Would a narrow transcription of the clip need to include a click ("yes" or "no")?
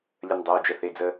no